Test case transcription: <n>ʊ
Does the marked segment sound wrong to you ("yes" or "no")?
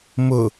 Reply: yes